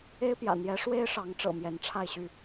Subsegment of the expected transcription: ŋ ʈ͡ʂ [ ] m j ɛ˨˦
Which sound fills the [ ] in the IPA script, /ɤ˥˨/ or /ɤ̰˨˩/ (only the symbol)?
ɤ̰˨˩